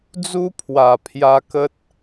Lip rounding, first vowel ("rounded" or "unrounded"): rounded